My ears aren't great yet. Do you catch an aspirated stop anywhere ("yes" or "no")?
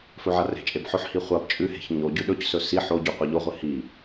no